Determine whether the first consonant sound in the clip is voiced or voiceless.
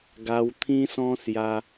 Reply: voiced